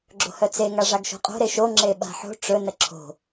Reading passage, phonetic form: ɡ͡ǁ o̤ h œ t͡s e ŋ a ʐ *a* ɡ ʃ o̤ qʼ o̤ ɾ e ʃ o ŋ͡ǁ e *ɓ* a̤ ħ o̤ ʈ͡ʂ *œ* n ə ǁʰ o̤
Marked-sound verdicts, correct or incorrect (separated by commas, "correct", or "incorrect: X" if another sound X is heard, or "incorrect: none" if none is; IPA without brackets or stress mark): correct, correct, incorrect: ɵ